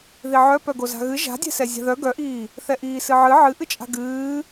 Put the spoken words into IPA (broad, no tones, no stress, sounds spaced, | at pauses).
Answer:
ð i ʕ œ p œ ɡ o z a̤ ɣ ɨ ʒ a̤ dʲ ɛ̤ s ɛ zʲ a̤ ð œ ɡ œ ʔ iː | θ ɛ ʔ iː s ɨ ʕ ɨ ʕ ɨ ʔ ɨ t͡ʃʼ a̤ ɡ ɨː